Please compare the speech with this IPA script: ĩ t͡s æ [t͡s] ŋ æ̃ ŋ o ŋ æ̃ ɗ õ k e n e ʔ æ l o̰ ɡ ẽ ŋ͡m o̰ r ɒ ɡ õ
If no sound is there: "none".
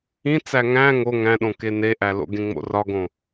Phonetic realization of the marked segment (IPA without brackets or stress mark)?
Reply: none